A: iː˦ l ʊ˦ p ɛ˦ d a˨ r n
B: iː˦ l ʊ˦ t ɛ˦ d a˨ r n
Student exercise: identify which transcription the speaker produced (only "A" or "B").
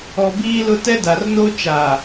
B